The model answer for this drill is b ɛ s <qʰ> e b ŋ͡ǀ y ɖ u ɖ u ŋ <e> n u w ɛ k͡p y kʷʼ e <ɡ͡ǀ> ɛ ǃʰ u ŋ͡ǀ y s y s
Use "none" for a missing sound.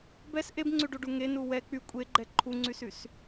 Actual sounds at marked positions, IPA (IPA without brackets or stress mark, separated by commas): ʔ, e, ɡ͡ǃ